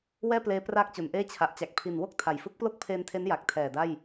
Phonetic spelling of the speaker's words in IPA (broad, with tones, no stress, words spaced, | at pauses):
wɛː˥˩pleː˦˥ praː˥˩k̚t͡ɕo˩˦nʔeː˥˩ t͡ɕʰa˨˩ʔt͡ɕa˨˩k̚ pʰi˨˩n wo˥˩k̚ tʰa˨˩j fɯ˦˥k̚plo˥˩k̚pʰeː˧ntʰe˦˥n ja˨˩k̚tʰɛː˨˩ da˥˩j